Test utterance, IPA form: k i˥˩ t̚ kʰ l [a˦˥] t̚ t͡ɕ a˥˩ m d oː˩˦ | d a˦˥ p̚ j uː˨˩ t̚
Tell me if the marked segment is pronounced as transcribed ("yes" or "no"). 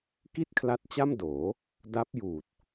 yes